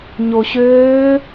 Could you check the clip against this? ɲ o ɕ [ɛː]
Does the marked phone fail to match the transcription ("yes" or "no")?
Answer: yes